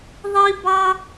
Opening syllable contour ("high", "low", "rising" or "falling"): high